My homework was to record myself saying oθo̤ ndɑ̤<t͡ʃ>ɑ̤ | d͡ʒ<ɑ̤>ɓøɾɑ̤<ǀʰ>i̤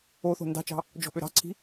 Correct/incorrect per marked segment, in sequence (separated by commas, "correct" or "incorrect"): correct, incorrect, correct